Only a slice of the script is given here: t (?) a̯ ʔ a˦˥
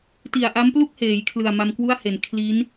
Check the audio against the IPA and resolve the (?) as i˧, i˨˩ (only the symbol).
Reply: i˨˩